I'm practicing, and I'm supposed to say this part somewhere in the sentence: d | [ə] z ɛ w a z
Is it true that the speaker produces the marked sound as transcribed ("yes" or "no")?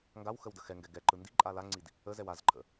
yes